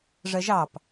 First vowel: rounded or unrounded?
unrounded